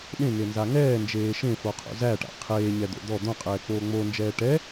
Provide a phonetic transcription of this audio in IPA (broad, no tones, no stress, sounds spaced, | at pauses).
ɗ ẽ ŋ e n z a ŋ ɛː n d͡ʒ eː ʃ ẽ f o qʰ o̰ z æ ʈ a̰ qʰ eː ɲ ɛ d̪ o̰ d̪ ɔ d̪ õ qʼ ɛː k͡p oː ŋ͡m o n d͡ʒ ɛː ʈ ɛ